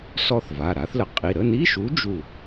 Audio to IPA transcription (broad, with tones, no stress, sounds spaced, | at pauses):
s ɔ˥˨ θ v a˩˧˩ ɾ a˨˥ θ l ə˩˧ qʼ i˩˧˩ ɾ ə˧˥˧ n i˧˥˧ ʃ u˨˥ d͡ʒ u˥˨